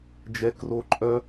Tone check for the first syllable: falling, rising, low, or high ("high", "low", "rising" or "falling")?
high